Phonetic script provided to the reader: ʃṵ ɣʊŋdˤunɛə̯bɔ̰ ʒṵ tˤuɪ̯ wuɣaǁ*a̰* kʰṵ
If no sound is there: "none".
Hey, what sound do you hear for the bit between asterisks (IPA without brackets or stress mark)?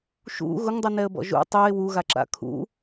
a̰